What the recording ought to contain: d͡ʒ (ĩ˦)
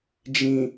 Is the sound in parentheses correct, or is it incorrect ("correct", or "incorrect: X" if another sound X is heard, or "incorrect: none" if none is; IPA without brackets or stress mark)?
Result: incorrect: ĩ˨